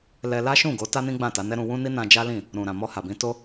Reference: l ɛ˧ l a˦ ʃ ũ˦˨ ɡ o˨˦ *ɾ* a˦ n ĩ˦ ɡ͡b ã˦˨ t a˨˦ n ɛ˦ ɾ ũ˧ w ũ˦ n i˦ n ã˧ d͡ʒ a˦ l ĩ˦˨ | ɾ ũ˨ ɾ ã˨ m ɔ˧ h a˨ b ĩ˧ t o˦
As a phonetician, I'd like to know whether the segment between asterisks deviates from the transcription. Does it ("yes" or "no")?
yes